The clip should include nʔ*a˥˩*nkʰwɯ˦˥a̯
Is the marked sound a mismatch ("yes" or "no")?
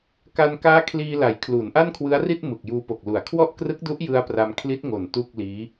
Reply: no